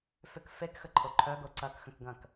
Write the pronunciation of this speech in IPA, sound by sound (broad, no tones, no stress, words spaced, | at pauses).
fʏk fekxə ǃʰoǃʰœɡo ǀɐkxə̃kɡɐ̃k